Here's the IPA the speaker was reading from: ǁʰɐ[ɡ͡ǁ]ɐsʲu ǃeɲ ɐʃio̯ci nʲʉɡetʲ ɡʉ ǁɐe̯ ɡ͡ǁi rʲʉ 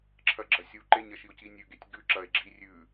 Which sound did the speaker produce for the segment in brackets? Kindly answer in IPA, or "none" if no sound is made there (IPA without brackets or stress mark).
ɡ͡ǁ